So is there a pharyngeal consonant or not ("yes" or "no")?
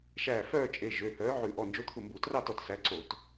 yes